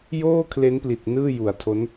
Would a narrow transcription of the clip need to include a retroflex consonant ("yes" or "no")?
no